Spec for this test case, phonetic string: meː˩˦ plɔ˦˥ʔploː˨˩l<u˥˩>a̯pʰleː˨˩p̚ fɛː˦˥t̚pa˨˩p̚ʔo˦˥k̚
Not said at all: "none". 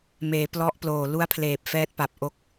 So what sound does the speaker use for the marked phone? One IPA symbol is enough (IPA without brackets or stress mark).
u˦˥